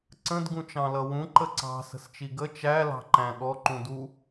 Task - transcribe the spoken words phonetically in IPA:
ǀ ə̃ d ɡ ũ t͡ʃ ɑ̃ l ʌ w ũ ǃ ə ǀ ɑ̤ s ə̤ s t͡ʃ i ɡ ə t͡ʃ æ l ɑ̤ ǃ æ̃ ɠ ɔ ǃ ũ d u

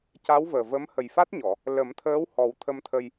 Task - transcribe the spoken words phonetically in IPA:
c a˧˥ w v əː˨˩ v ə˧˥ m h ə˨˩ j f a˦˥ t̚ ɲ ɔ˨˩˨ | l ə˨˩˦ m t̪ʰ əː˧˥ w h ɔ˨˩˦ w t̪ʰ ə˧ m t̪ʰ ə˧ j

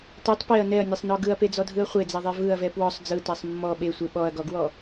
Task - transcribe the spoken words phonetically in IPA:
t ɛ tˤ p e ɐ̯ n ɛ ɐ̯ nʲ ɛ sˤ n ɔ ɡ ɯ ɐ̯ p e d͡z ɔ dʱ ɯ ɐ̯ χʷ e d͡z e ðˤ e v ɯ ɐ̯ v ɛ p w ɔ sˤ d͡z ɯ t ɛ sˤ mː ɔ ɓ e sʷ e ɓ ɔ ɐ̯ ɡ ɔ ɡ w ɔ

